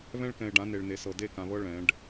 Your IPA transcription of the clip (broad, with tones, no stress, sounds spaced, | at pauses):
β ɛ̃˦ ɭ k ɛ̃˨ e̯ ɖ ã˨˦ n e˨ ɭ n e˨ s ɤ˨ d e˦˨ k ã˨ β ɤ˦ ɭ ɛ̃˨˦ ɖ